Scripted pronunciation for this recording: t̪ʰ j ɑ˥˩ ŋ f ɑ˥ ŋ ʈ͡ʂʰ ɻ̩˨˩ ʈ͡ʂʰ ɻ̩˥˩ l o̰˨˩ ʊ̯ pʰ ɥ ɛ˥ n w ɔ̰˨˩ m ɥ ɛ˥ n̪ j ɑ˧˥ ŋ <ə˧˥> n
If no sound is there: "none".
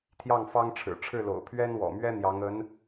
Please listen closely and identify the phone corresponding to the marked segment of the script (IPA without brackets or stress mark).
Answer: ə˧˥